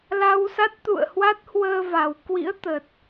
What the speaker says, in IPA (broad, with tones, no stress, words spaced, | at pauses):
la˧wsa˦˥t̚t̪ṵ˧˨ə̯ hwa˦˥t̚hwəː˧va˨˩w kwḭ˧˥ə̯t̪ə˨˩t̚